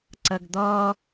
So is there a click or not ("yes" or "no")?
yes